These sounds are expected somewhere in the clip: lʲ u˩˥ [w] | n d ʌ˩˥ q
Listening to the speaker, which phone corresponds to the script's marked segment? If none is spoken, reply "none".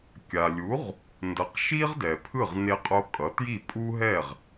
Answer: ʁ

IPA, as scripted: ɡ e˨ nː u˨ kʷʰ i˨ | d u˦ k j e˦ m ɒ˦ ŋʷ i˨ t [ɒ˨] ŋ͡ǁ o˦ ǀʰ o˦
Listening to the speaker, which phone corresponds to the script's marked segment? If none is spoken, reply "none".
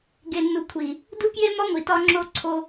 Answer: ɒ˦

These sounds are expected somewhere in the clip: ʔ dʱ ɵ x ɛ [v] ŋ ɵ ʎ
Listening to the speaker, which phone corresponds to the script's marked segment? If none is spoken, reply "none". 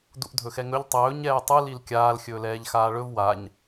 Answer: none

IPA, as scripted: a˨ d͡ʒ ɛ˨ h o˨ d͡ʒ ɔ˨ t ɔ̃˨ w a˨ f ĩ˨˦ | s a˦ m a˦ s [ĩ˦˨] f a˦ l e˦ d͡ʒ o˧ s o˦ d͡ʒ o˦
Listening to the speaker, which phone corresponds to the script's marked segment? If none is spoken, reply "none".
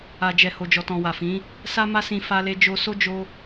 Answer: ĩ˧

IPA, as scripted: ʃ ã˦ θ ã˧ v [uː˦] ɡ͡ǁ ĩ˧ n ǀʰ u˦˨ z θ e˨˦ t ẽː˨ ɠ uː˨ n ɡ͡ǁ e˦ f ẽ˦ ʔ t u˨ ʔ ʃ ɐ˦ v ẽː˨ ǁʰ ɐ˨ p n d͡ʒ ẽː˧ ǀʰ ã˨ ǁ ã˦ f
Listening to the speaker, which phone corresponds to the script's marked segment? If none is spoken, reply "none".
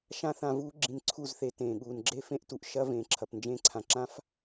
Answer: uː˦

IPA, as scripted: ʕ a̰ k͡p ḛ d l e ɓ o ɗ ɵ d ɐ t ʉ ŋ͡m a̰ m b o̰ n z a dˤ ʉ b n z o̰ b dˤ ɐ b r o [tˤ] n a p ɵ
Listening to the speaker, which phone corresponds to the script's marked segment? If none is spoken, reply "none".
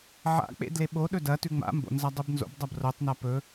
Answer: tˤ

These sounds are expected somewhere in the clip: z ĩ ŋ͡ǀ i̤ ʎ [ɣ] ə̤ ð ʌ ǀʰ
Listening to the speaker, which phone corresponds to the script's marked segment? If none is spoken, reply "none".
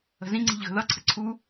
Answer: ɣ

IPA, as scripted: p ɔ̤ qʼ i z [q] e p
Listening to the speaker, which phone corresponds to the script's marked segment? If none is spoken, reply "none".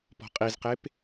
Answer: q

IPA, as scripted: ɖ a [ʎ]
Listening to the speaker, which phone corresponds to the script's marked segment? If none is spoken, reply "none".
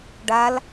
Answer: l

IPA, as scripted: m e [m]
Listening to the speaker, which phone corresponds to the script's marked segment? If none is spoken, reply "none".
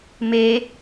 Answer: none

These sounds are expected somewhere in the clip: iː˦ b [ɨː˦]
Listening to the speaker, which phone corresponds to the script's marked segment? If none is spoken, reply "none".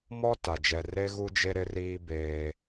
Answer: eː˦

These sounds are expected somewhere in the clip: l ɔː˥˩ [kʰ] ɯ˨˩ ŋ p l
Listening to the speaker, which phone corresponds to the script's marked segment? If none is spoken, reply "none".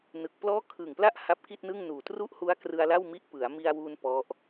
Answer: kʰ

